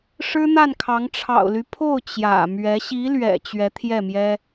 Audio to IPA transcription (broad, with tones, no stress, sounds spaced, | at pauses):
ʂ ɻ̩˥ n̪ a˥˩ n kʰ ɑ˧˥ ŋ ʈ͡ʂʰ ɑ̰˨˩ ʊ̯ l y˦ pʰ o˥˩ ʊ̯ t͡ɕ j ä̰˨˩ m ɥ ɛ˧˥ ɕ i˧˥ l ɥ ɛ̰˨˩ t͡ɕ ɥ ɛ˧˥ t̪ʰ j ɛ˥˩ m j ɛ˥